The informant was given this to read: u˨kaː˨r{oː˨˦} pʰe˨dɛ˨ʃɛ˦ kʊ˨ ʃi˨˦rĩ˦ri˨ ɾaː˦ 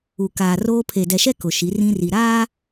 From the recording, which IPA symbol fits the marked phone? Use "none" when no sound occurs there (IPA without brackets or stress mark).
oː˦